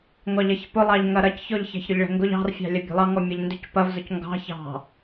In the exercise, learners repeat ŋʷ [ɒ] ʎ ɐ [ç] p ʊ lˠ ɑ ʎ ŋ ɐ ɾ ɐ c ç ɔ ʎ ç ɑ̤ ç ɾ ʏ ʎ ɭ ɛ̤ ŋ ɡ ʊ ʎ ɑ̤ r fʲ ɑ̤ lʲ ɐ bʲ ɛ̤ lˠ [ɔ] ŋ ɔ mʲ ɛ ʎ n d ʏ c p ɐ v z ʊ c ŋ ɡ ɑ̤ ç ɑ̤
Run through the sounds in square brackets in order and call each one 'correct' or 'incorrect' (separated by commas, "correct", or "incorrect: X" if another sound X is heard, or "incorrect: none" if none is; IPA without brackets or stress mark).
incorrect: ɑ, correct, incorrect: ɑ